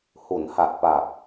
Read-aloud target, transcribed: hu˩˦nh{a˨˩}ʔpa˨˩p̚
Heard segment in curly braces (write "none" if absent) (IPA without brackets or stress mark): a˨˩